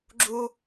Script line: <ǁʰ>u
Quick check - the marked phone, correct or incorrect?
incorrect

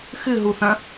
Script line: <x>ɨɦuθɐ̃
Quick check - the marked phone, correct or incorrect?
correct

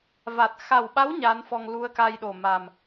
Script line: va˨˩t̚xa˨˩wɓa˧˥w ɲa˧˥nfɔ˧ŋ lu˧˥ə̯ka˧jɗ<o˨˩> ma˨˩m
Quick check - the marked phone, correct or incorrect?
correct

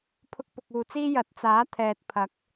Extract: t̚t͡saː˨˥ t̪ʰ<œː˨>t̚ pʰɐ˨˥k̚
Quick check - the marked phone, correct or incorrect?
incorrect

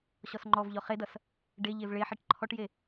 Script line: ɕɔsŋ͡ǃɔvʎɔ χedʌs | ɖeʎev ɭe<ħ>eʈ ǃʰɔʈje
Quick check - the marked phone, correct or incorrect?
correct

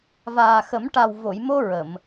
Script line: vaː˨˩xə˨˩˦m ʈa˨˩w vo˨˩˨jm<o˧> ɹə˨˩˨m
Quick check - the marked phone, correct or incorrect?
correct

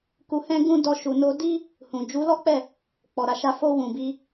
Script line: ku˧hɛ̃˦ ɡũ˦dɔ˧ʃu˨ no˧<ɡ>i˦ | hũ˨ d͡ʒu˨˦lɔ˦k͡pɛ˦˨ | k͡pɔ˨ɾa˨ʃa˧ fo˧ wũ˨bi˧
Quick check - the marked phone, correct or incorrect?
incorrect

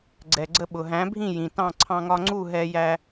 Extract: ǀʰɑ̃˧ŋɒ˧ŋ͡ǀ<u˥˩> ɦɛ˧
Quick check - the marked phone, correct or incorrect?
correct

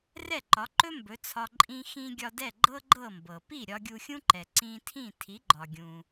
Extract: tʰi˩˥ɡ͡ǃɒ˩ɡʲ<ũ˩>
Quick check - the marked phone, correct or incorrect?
correct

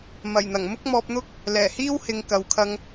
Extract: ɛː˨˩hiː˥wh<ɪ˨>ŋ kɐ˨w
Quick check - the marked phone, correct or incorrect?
correct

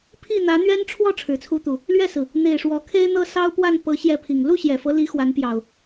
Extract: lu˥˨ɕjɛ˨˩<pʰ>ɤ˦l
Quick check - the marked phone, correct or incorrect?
incorrect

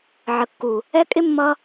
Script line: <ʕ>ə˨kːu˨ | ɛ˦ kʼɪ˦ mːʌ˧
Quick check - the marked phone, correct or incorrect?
correct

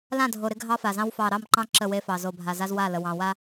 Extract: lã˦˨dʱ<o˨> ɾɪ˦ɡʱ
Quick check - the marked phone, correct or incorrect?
correct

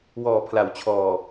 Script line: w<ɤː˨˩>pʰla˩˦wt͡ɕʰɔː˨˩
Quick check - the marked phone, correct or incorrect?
incorrect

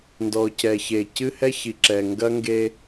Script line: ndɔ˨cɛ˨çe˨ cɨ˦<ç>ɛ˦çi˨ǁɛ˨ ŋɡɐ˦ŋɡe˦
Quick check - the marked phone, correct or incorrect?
incorrect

